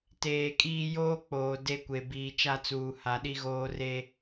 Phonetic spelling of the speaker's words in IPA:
t eː˨ kʼ iː˦ j oː˦ k͡p oː˨ d e˦ kʷ e˨ b iː˨ t͡ʃ a˦ t͡s uː˨ h a˨ ɗ i˦ ɣ oː˦ r e˦

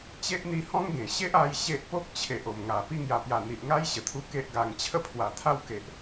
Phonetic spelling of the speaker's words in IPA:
t͡ɕ e˦ ʔ n̪ i˧ h ɔ̃˦ ŋ ɡ ẽ˨˩ ɕ e˦ ʔ a˦ j ɕ e˦ ʔ p o˦ k̚ t͡ɕʰ e˨ ʔ o˨˩ m ŋ a˨˩ p i˧ ŋ j a˨˩ p j a˨˩ n̪ i˨ ʔ ŋ a˦ j ɕ ə˨˩ t̪ʰ u˧ k e˦ ʔ ɡ a˧ ŋ t͡ɕʰ ə˥˧ pʰ w a˨˩ t̪ʰ a˥˧ w k e˨ ʔ

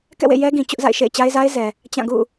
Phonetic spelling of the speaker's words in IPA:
k ɛ̰˦˨ w ḛ˦˨ j ɛ˦ ɡ ĩ˨ t͡ɕ ʊ˦ ʔ z a̰˦˨ ɪ̯ ʃ ḛ˦˨ ɪ̯ t͡ɕ a˦ ɪ̯ z a˦ ɪ̯ z ɛ˨ | t͡ɕ ã˦˨ ɡ ṵ˦˨

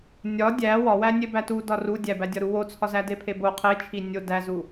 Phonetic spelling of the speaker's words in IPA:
nʲ ɒ dʲ æ w ɒ w æ nʲ e b æ t u d ɒ r u dʲ æ b æ dʲ ɒ ɾ u w o t͡sʰ ɒ z æ d e pʰ e b o qʰ e t͡ʃʰ i nʲ o d æ z u

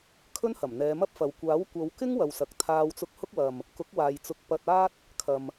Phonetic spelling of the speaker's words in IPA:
kʰ ɵ˥ n h ɐ˨˩ m n̪ ɛː˨˧ m ɐ˥ p̚ f ɐ˨ w kʷ aː˨˥ w kʷ ɐ˨˧ w k ɪ˥ ŋ w ɐ˨ w s ɐ˨ k̚ t̪ʰ aː˧ w t͡s ʊ˨˥ k̚ h ʊ˧ k̚ w ɐ˨ m | k ʊ˨˥ k̚ w aː˨ j t͡s ʊ˨˥ k̚ p ɐ˧ t̚ aː˥ t̚ | kʰ ɐ˨ m

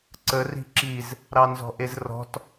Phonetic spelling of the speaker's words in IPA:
ǀ ə r i̤ ǁ i z | ɾ ɑ n z ɔ̤ ʔ e z r ɔ̤ t

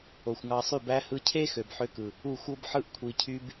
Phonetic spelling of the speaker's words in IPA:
o˨ xʷ ŋ ɑ˧ sˤ y˦˨ b æ˦ h ɯ˧ cʰ e˦ x ø˨ b ħ ø˧ k ɯ˨ | u˦˨ xʷ o˦ b ħ ɯ˦ ʔ kʷʰ i˨ cʰ y˧ b

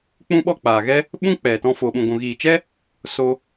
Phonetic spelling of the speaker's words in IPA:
k͡p ũ˦ ɓ ɔ˦˨ k͡p aː˨ ɣ ɛ˦ | ɓ ũ˦ k͡p ɛ˨ t ɔ̃˧ f oː˨ ɓ ũ˨ ɡʷ ũ˨ ɣ iː˨ t͡ʃ ɛ˦ | s o˧

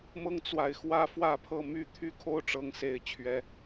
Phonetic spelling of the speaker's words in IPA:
m ɤ˦ ŋ t͡s w a˨ ɪ̯ x w ä˦ f w ä˥˨ pʰ ɤ˥˨ m y˥˨ t̪ʰ y˥˨ kʰ o˦ ʊ̯ ʈ͡ʂ ɤ˦ ŋ s e˥˨ ɪ̯ t͡ɕʰ ɥ ɛ˦

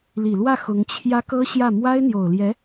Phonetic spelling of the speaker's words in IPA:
l i˨˩ l w ä˥˩ x ʊ˧˥ ŋ t͡ɕʰ j ä˧˥ k ɤ˥ ɕ j ä˥˩ m w a˥ ɪ̯ n̪ j o˨˩ ʊ̯ l j ɛ˧˥

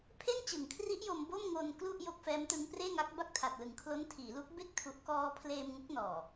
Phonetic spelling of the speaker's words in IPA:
pʰ e˥˩ n t͡ɕ ɯ˩˦ ŋ kʰ r i˦˥ ʔ j o˧ m b o˥˩ m ŋ o˧ n k l u˥˩ ʔ j o˥˩ k̚ f ɛː˦˥ m t ɯ˦˥ ŋ p r eː˥˩ ŋ a˦˥ k̚ b a˥˩ k̚ tʰ a˨˩ t̚ l ɯ˨˩ ŋ kʰ l o˦˥ n tʰ iː˩˦ l u˦˥ k̚ b e˥˩ k̚ tʰ u˨˩ ʔ k ɔː˧ pʰ l eː˧ m ŋ u˦˥ k̚ n ɔː˨˩

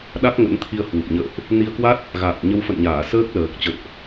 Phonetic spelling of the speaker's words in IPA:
ɗ a˦˥ k̚ ŋ ə̰˧˥ n t̪ʰ i˧ ə̯ h w u˨˩ p̚ ɲ ə̰ː˧˨ ʔ | n i˧ ə̯ k w a˦˥ t̚ | ɣ a̰ː˧˨ n ɲ ə˨˦ w f ə̰˧˨ n ɲ aː˧˩ s əː˦˥ k̚ l əː˨˩ k̚ t͡ɕ ə̰˧˨ n ʔ

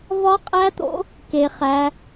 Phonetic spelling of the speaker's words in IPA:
v ɒ˦˥ qʼ æ˦˥ t̪ o̰˦˥ | k e˦˥ χ æ˦˥

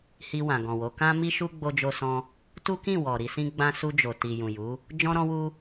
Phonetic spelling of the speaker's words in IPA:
h i˧ w ã˨ ɡ ɔ̃˨ w o˨˦ k ã˦ m i˦ ʃ u˦ ɡ͡b o˧ d͡ʒ o˧ s ɔ̃˧ | t u˦ k ĩ˦˨ w ɔ˨ ɾ i˧ s ĩ˦ ɡ͡b ã˦ s u˧ d͡ʒ o˨ t i˨ j ũ˨ j u˨˦ | d͡ʒ ɔ̃˦ ɾ ɔ̃˦ w u˦

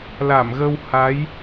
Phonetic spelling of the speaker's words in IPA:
l a˧˩ m ɣ ə˧ w h a˨˦ j

